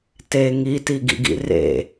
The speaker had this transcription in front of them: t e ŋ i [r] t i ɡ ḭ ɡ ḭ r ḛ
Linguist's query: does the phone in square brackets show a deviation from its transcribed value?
yes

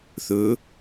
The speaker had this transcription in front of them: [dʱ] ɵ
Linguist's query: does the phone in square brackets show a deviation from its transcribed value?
yes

